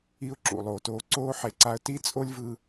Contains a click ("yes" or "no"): yes